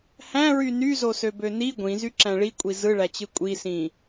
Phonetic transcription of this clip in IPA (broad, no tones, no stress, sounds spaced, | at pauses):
h æ̃ ɹ y n y z o s ø b ø n i ɡʷ ĩ z y ǁ æ̃ ɭ i kʷʼ i z ɯ ɭ æ t͡ɕ ɯ kʷʼ i s ĩ